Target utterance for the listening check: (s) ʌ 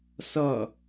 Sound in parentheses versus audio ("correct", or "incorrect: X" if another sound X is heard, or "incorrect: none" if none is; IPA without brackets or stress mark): correct